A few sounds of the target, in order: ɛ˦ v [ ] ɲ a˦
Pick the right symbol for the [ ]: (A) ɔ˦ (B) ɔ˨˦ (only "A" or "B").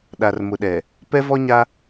A